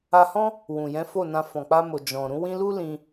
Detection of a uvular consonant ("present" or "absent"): absent